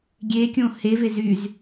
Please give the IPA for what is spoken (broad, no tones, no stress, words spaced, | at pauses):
ɡʲekʲõ heve zyz